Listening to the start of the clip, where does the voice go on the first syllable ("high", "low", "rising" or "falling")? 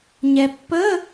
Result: low